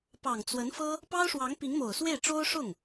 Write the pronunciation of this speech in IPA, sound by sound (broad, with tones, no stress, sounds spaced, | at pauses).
p ɑ˨˩ ŋ t͡s w ə˧˥ n f ɤ˥ | p ɑ˥ ʊ̯ ʂ w ɑ˧˥ ŋ p i˧˥ ŋ m o˨˩ ʊ̯ s w e˥˩ ɪ̯ ʈ͡ʂ o˥ ʊ̯ ʂ ʊ˥˩ ŋ